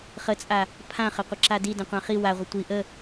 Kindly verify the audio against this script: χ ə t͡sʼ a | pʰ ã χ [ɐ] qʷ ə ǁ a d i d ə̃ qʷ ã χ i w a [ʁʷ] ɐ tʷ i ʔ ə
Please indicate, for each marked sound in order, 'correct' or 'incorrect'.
incorrect: ə, correct

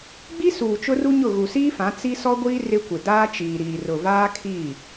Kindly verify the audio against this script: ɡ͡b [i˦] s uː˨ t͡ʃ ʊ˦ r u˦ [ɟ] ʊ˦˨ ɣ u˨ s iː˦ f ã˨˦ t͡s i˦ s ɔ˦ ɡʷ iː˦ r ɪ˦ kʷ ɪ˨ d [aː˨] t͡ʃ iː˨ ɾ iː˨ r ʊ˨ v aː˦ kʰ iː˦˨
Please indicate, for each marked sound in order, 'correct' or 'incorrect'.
correct, incorrect: ɲ, incorrect: aː˦

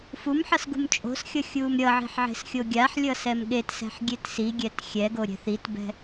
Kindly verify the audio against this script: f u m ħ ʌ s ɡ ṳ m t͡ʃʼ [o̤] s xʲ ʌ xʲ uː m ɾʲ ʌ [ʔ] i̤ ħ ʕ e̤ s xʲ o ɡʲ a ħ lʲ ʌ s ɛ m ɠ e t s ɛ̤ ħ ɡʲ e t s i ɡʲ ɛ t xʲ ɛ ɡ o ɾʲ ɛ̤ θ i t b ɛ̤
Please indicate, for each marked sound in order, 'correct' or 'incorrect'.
correct, incorrect: ʕ

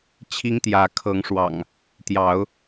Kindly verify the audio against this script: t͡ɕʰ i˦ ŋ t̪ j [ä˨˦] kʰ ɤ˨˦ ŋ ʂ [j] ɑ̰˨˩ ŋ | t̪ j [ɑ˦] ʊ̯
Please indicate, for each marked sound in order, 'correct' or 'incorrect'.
correct, incorrect: w, incorrect: ɑ˨˦

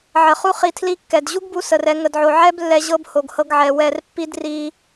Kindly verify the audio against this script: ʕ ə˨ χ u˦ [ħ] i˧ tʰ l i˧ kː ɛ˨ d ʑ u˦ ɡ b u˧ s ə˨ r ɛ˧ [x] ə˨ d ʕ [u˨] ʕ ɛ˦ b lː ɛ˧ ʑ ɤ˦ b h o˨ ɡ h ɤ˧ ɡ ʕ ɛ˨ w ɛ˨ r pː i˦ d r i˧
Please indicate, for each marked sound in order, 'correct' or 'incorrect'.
incorrect: χ, incorrect: ŋ, incorrect: o˨

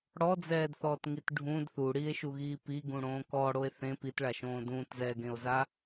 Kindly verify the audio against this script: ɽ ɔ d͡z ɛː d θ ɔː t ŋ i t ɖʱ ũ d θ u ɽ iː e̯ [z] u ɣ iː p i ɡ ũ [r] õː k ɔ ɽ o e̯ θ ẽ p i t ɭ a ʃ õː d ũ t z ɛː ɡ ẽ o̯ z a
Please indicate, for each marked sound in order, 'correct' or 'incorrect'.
incorrect: ʃ, incorrect: ɽ

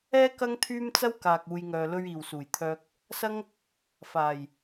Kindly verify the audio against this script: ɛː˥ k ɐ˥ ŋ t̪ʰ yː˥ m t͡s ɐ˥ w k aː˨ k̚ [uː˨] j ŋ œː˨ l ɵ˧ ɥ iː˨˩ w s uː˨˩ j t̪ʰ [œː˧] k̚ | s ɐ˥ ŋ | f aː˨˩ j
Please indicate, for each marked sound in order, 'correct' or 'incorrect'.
correct, correct

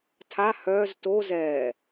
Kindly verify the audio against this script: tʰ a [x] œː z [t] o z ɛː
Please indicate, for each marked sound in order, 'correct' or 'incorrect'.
incorrect: h, correct

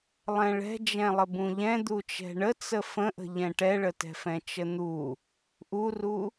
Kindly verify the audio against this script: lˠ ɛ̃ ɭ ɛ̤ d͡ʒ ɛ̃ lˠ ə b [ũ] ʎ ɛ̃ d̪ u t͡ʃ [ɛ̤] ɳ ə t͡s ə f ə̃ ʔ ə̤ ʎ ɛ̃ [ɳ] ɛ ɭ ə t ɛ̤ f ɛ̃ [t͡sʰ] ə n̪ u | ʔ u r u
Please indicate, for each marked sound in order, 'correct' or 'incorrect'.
correct, correct, incorrect: ʈ, incorrect: t͡ʃ

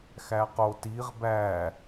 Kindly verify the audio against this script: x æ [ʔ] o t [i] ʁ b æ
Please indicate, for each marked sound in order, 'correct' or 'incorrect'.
incorrect: q, correct

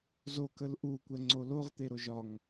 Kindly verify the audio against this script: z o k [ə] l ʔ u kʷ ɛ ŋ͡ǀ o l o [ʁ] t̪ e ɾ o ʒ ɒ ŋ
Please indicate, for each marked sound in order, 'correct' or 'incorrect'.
correct, correct

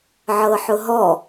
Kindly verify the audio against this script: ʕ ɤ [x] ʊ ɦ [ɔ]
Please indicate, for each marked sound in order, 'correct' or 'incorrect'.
incorrect: ħ, correct

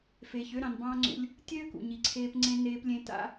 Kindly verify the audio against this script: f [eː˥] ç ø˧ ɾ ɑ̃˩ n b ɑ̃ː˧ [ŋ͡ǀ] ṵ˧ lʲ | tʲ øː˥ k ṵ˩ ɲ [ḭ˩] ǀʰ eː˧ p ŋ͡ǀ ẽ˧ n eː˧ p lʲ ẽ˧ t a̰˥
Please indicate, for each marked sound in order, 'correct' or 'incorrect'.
incorrect: eː˩, correct, incorrect: i˩

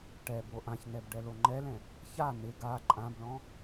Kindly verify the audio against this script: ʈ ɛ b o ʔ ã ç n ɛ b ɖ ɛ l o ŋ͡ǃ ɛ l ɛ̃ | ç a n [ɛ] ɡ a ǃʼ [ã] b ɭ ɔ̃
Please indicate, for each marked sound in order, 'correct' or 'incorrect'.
incorrect: ɪ, correct

